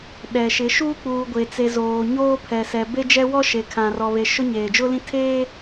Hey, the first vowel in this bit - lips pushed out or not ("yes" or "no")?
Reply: no